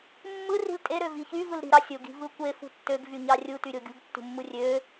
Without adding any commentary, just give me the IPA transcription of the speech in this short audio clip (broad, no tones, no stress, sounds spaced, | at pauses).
mː ɯ r i̤ l tʼ e ɾ ø v i ç y v ɯ l ɾ i̤ ɾ ɑ sʲ o ɡ i̤ v ɯ kʷ e f ṳ tː ø ɡ v y ɲ ɑ rʲ u t y ɾʲ o ɡʲ ṳ ɡ tː ṳ mː ɯ rʲ ø